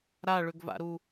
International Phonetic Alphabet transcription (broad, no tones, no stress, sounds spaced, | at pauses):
ɾ a ɭ ʏ ɡ v a̰ ɾ u